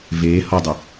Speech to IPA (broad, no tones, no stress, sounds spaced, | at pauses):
v eː h ɔ dˤ ʊ